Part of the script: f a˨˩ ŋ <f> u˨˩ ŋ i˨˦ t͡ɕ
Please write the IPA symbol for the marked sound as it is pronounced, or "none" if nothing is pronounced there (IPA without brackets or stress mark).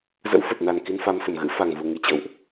v